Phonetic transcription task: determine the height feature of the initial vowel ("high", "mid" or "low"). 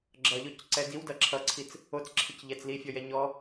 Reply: mid